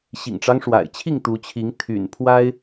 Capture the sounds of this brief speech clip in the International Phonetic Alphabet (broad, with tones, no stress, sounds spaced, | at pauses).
ɕ ḭ˨˩ ŋ ʈ͡ʂ ɑ˦ ŋ ʂ w a̰˨˩ ɪ̯ t͡ɕʰ i˥˨ ŋ t̪ u˨˦ t͡ɕʰ i˨˦ ŋ t̪ʰ y̰˨˩ n pʰ w a˦ ɪ̯